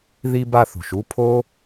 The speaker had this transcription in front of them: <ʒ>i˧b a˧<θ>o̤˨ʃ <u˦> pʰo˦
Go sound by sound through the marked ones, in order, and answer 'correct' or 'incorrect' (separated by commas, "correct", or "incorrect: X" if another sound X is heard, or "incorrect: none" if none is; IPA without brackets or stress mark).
incorrect: ð, correct, correct